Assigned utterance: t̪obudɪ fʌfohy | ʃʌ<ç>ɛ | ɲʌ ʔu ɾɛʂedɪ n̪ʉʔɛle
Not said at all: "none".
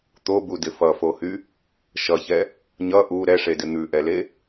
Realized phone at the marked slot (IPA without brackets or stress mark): ç